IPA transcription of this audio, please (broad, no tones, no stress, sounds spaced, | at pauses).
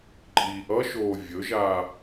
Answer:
ǃʼ iː ʔ ʌ ʃ oː vʲ ɵ ʒ aː